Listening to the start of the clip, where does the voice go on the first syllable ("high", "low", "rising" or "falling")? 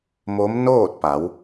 rising